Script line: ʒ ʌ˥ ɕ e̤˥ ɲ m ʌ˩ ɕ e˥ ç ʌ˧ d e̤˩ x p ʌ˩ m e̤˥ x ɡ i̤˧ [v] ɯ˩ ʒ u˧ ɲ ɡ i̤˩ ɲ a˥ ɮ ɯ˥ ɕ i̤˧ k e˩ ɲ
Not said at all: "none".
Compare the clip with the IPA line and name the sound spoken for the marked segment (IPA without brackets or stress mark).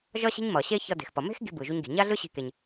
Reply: b